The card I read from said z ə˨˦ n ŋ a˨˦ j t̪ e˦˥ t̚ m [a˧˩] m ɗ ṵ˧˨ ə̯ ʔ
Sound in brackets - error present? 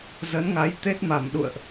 no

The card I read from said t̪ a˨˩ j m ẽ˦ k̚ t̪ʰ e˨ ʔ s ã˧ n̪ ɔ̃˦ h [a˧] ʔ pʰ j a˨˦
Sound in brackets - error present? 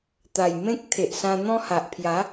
yes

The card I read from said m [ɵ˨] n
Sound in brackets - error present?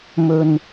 no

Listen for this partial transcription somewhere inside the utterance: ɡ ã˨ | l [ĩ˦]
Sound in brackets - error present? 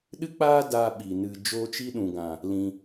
yes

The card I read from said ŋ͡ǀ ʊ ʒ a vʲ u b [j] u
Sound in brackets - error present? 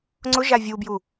no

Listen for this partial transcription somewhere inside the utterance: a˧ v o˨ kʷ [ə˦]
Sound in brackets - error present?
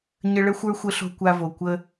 no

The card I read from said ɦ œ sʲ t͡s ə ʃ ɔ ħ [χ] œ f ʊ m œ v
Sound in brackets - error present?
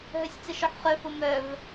no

